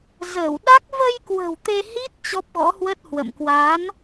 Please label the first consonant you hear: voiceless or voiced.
voiced